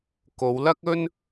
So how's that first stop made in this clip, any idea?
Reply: plain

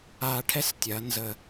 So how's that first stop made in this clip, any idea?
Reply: aspirated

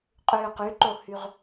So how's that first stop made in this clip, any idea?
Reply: ejective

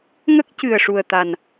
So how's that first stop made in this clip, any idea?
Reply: plain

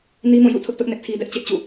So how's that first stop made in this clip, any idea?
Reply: aspirated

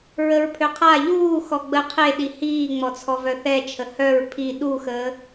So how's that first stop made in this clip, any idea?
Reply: aspirated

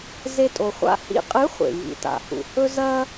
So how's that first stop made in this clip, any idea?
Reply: ejective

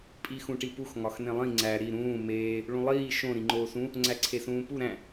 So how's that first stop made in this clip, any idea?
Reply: ejective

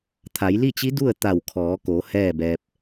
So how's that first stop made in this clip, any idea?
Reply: aspirated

